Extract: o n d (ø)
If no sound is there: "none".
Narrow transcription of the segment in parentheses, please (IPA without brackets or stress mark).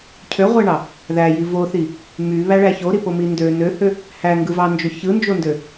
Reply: ø